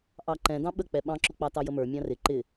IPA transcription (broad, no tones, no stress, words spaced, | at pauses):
ʔɑǃɛ̃ dɑ̃ɓək͡pɛ ɓɑ̃ǁʊk͡pɑ tɑjəmə˞ mʲɑ̃rɪ ǃɪ